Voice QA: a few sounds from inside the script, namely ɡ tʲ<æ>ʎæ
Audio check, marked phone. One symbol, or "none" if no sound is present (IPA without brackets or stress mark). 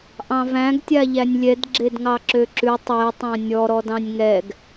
a